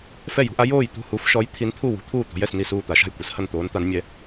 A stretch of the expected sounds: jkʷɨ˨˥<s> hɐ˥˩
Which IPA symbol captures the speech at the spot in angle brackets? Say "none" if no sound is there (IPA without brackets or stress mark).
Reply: s